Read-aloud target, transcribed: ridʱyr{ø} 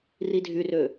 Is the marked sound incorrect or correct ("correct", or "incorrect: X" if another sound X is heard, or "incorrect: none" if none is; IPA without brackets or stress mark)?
correct